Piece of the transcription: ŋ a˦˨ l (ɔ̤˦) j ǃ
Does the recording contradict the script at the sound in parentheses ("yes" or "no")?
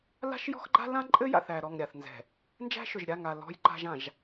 no